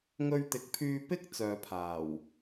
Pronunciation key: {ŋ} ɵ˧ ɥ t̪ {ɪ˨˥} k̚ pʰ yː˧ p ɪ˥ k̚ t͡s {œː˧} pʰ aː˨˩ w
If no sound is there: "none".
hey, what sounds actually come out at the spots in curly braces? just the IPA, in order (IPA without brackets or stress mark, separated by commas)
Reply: ŋ, ɪ˨˥, œː˨